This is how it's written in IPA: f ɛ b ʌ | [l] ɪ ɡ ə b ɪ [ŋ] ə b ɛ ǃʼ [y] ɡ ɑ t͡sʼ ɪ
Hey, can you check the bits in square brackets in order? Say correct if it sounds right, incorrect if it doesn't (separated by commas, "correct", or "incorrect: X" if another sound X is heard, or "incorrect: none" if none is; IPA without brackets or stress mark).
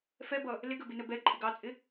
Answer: correct, incorrect: n, incorrect: ɪ